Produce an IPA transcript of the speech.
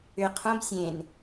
ʏ qʰ õ b sʲ ẽ n

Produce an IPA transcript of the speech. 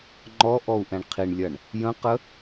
ŋ͡ǃ ɔ ʔ ɔ u̯ ʔ ɛ̃ ɳ qʰ i ɳ lʲ ɐ ɳ | j ə̃ q ə

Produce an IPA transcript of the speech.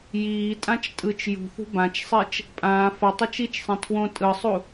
j iː tʼ ã t͡ʃ tʼ ɯ t͡ʃ j ṳ θ ṳ b ã t͡ʃ sˤ i t͡ʃ | pʼ ãː f ʌ tˤ ɛ t͡ʃ i t͡ʃ sˤ ẽ tʰ w õ tʼ ɯ sˤ u

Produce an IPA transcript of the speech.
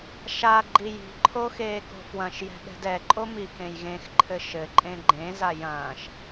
ʃ a ɡ͡ǃ i j i̤ ǃʰ o x eː k o̤ f w ɐ̃ ʃ j ɛ̤ ɠ ɛ̤ d ɛ ǃʼ o m i k ẽ j ɣ ẽ x ǃʰ ɘ ʃ ɘ ǃʼ ẽ ɡ͡ǃ ẽ z a j ɐ̃ː ʃ

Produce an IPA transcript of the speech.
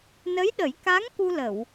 n ə˧˥ j ɗ ə˨˩˦ j k a˧˥ ŋ k u˧ l ə˨˩˨ w

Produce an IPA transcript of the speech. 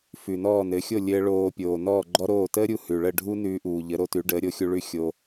f ʉ˩ n ɔː˥˩ n ɘ˩˥ xʲ o˥˩ lʲ ɘː˧ ɭ oː˧ pʲ oː˩ n ɔː˥˩ ɡ͡ǃ ɔ˥ ɾ oː˥˩ t əː˥ ɾʲ u˧ h ʉ˩ ɭ ə˥˩ ɖʱ u˥ n ʉː˧ ʔ uː˩ ʎ ə˩˥ ɾ o˧ t ʉ˩˥ ɖ əː˩˥ ɾʲ o˩˥ xʲ u˧ ɭ ʉ˥˩ xʲ o˧

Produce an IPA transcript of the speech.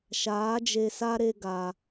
ʃ aː˨˦ d͡ʒ e˧ s a˦ ɾ e˦ ɡ a˧

